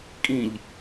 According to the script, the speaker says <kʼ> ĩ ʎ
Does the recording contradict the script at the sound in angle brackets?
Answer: no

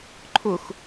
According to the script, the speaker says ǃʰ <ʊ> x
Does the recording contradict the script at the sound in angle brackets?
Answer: no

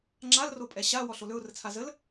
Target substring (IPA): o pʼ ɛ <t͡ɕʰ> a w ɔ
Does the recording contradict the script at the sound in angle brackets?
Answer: yes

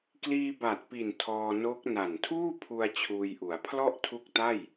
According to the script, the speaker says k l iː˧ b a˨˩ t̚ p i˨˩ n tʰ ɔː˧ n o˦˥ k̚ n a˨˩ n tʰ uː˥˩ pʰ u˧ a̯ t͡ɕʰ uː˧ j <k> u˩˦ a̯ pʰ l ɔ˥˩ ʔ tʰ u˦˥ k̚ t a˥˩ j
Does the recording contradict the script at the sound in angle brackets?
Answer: yes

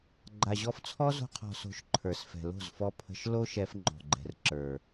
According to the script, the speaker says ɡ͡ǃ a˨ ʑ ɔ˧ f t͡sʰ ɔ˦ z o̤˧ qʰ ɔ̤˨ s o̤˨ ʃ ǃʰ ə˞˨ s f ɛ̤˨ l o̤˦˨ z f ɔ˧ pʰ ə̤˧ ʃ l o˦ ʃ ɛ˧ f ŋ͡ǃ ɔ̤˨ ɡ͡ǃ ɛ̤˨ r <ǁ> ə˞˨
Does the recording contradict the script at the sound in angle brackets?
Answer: no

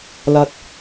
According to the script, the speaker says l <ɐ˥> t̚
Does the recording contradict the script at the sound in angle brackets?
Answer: no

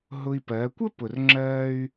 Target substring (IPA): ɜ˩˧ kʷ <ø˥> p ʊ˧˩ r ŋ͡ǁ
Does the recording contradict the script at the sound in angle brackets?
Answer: yes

